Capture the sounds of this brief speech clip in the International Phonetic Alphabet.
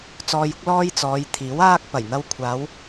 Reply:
t͡s ɔː˧ j ʊ˥ k̚ l ɔː˥ j t͡s ɔː˨˧ j t̪ʰ iː˨˥ w aː˥ k̚ p ɐ˨˩ j n̪ ɐ˧ w kʷʰ aː˨˧ w

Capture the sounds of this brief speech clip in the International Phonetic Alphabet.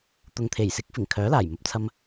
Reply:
t̪ ʊ˨ ŋ t̪ʰ e˨˩ j s ɪ˨˥ k̚ f ɪ˨˩ ŋ kʰ œː˨˥ l aː˨˩ j m ɐ˨ p̚ t͡sʰ ɐ˧ m

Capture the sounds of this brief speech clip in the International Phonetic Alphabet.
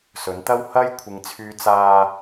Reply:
s ɵ˨˥ n t̪ ɐ˥ w h ɐ˥ j kʷʰ ɪ˨ ŋ t͡sʰ yː˨˧ t͡s aː˧

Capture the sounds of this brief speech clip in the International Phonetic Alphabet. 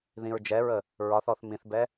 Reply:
ð ĩ ɹ d͡ʒ ɛ ɹ ə | ɹ ɒ θ ɔ θ m ĩ θ b ɛ

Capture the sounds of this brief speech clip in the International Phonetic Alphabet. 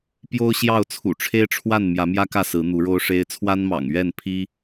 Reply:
p j o˦ ʊ̯ ɕ j ɑ˥˨ ʊ̯ t͡sʰ ṵ˨˩ ʈ͡ʂʰ e˦ ɪ̯ ʈ͡ʂʰ w a˥˨ n m j ä˨˦ m j ä˦ k ä˥˨ s ɹ̩˨˦ n̪ u˨˦ ɻ o˦ ʊ̯ ʂ e˦ ɪ̯ t͡sʰ w a˦ n m ɑ̰˨˩ ŋ ɥ ɛ˥˨ n pʰ i˦

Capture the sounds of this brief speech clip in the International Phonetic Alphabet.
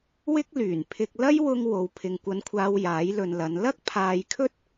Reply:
w ɪ˥ k̚ l yː˨˩ n pʰ ɪ˧ k̚ l ɐ˥ j w ʊ˧ ŋ w o˨˧ w pʰ ɪ˨ ŋ kʷ ɐ˧ n kʷʰ aː˧ w j aː˨˥ j l ɵ˨ n l ɐ˨˧ n l ɐ˥ k̚ pʰ aː˨ j kʰ ɵ˥ t̚

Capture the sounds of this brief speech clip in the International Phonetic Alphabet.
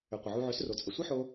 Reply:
ʏ˨ qʷ ə˨ ʕ u˧ ʕ ʏ˨˦ s r o˨ t͡sʼ ə˨ sʷ i˦ ħ o˧

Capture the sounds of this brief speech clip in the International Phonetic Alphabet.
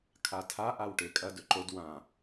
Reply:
kʰ a tʰ a ʔ a w ʈ e kʼ ɐ d ɵ ǃ o d w ã

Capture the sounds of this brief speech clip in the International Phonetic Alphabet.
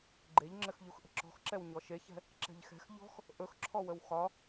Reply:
ɡ͡ǃ e ʎ ŋ͡ǁ ɘ x ʎ u x ʔ ə̤ ǁ ɔ̤ x ǁ ɛ w ɲ ɔ ʃ e ç ɛ̤ | ǁ ɛ̤ ʎ x ɛ̤ x ʎ ɔ̤ x | ʔ ɵ x ǁʰ ɔ w ə w x ɒ

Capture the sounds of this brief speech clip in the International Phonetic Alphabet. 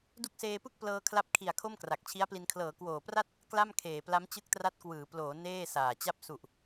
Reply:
d u˦˥ k̚ s eː˧ p ɯ˥˩ k̚ p l ɤː˧ kʰ l a˦˥ p̚ kʰ i˨˩ a̯ kʰ o˥˩ m k r a˨˩ k̚ t͡ɕʰ i˦˥ a̯ p l i˧ n kʰ l ɤː˩˦ k w oː˨˩ p r a˥˩ t̚ | k l a˥˩ m kʰ eː˨˩ p l a˦˥ m t͡ɕ ɯ˦˥ k̚ t r a˦˥ t̚ k w ɯː˩˦ p l oː˩˦ n eː˥˩ s aː˨˩ t͡ɕ a˥˩ p̚ s u˨˩ ʔ

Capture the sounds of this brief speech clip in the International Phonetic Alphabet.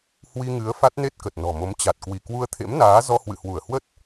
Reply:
h w i˧ ŋ ɨ˨˦ ə̯ f a˦˥ t̚ n e˦˥ t̚ k ə˨˩ t̚ n ɔ̤˨˩ m o˨˦ m t͡ɕ a˨˩ t̚ k w i˧˩ k w u˧ ə̯ t̪ʰ ḛ˧˥ m n aː˨˦ z ɔ˧ h w ɨ̰˧˨ h w u˧˩ ə̯ h w ə˦˥ t̚

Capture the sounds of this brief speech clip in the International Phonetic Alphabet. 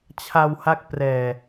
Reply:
t͡ɕʰ a˧ w h a˦˥ k̚ p r ɛː˨˩

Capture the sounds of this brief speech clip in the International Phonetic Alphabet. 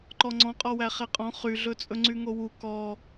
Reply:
ǃ ɔ ŋ͡ǀ ɔ̃ qʼ ɔ w æ χ ɛ qʼ ɔ̃ χ y ɮ ɵ t͡sʼ ɵ ŋ͡ǀ y ŋ o w u k ɔ

